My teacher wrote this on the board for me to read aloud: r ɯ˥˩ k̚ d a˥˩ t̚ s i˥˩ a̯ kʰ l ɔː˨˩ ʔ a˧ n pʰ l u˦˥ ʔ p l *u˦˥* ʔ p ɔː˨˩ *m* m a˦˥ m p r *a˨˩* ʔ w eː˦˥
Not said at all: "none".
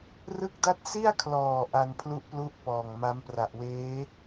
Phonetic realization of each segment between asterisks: u˦˥, ŋ, a˨˩

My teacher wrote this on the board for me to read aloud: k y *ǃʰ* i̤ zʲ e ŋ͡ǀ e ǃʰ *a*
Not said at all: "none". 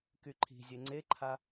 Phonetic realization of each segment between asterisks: ǃʰ, a

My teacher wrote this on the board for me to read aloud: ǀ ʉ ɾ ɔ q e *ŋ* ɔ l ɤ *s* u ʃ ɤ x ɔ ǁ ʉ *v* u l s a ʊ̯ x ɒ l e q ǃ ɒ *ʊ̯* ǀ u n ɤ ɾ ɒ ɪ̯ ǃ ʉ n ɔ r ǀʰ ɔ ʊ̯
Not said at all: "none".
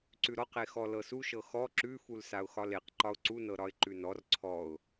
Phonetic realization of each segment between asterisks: x, s, f, ʊ̯

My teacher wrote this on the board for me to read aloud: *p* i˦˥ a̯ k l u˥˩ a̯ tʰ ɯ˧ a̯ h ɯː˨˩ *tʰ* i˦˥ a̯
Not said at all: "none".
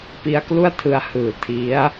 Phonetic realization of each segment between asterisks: p, tʰ

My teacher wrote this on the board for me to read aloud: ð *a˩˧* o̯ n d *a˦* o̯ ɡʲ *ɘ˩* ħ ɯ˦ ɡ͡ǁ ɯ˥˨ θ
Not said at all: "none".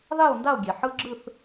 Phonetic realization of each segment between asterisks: a˥˨, a˥˨, e˩

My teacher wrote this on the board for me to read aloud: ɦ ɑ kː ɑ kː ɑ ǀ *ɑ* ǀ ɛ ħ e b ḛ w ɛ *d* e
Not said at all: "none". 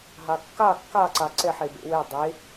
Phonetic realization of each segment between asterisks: ɑ, dˤ

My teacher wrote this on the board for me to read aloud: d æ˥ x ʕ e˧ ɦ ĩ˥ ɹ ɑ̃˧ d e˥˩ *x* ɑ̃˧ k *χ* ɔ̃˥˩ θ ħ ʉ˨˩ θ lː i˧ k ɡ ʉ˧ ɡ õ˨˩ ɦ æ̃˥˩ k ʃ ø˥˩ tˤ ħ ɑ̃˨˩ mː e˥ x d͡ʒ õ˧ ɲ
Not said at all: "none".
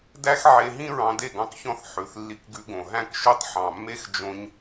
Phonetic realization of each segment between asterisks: ɡ, ç

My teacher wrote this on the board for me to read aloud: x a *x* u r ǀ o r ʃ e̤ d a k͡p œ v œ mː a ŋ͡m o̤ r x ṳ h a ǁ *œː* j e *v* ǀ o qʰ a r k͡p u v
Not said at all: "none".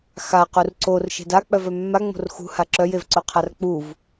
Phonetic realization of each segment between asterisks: q, œ, v

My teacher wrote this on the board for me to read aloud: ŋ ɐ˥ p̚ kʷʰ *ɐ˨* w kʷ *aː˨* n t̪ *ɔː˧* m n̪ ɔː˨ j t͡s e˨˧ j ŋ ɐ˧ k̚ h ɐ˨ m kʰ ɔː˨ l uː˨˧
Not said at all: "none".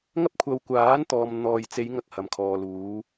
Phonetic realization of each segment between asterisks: ɐ˧, aː˨˥, ɔː˨

